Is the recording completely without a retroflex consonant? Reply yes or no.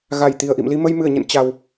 yes